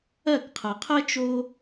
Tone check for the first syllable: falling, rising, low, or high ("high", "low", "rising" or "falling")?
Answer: falling